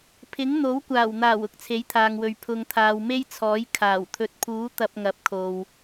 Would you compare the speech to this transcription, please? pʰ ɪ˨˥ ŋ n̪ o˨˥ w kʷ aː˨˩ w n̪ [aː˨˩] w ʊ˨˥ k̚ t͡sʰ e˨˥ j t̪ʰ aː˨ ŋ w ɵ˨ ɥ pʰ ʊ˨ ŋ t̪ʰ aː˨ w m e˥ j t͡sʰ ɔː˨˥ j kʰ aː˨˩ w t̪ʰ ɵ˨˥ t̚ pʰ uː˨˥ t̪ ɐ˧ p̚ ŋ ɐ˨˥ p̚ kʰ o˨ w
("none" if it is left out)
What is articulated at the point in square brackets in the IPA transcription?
aː˨˩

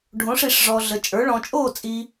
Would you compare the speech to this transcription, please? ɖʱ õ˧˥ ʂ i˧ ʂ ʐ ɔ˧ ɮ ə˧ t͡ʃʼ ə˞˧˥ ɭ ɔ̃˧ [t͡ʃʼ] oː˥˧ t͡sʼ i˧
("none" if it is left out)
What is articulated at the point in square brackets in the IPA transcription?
t͡ʃʼ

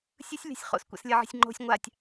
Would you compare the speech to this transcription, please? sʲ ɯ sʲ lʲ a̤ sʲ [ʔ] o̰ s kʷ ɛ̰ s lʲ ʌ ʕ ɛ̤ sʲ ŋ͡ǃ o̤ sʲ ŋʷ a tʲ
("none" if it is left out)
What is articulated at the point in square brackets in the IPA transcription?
χ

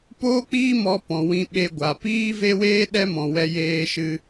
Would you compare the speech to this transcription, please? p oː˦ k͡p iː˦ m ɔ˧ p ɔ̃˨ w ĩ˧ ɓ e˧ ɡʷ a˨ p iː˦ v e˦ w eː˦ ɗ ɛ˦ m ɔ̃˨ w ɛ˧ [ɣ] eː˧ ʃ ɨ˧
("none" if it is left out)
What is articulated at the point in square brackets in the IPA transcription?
j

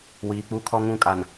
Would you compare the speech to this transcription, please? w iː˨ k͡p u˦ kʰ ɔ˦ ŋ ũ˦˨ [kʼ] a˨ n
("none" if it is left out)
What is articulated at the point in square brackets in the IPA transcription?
kʼ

